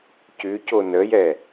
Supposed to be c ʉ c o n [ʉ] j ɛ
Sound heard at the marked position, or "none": ə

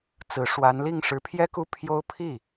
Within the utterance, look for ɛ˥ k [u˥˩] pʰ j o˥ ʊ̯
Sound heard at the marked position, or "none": u˥˩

